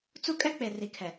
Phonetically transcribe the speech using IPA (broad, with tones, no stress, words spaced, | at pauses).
t͡su˦kʼɛ˦k͡pe˨ ri˨kʰɛ˨